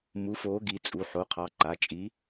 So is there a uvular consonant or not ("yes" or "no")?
yes